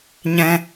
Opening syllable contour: low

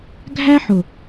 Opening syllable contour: high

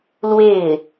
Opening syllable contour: falling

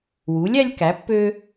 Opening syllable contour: rising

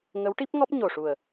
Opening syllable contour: rising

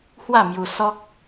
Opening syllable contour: falling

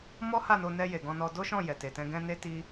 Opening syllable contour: high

